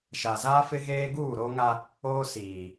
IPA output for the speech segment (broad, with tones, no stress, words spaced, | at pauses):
ʃa˨za˦fɪ˦ɣeː˦ ɡuː˦˨ɾo˦ŋa˦ | oː˦siː˨